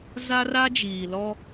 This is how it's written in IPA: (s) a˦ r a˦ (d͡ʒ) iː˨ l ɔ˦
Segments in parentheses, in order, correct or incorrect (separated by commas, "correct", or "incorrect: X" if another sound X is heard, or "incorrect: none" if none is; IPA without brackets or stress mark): incorrect: z, correct